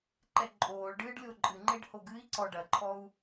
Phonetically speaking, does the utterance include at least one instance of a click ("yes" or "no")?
yes